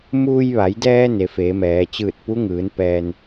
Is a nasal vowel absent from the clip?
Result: yes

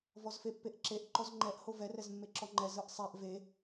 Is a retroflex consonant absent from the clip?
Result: yes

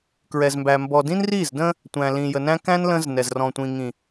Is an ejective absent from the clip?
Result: yes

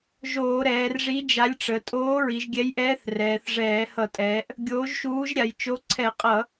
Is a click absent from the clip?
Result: no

